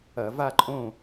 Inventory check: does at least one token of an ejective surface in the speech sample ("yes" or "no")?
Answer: yes